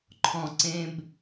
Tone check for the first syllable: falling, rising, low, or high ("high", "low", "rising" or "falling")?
low